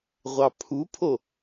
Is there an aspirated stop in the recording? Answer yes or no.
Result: yes